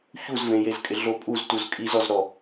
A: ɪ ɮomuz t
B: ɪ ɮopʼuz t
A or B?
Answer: B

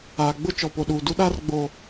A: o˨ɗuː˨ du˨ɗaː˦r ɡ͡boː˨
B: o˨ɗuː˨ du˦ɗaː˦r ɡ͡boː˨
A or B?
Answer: B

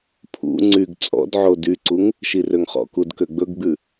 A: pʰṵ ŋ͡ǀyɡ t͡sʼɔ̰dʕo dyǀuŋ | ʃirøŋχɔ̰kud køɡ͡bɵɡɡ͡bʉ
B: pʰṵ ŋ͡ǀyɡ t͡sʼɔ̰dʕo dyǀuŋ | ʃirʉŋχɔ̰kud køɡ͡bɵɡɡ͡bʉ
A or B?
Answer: A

